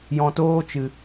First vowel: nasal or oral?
nasal